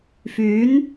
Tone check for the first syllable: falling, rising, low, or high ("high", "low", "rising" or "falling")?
rising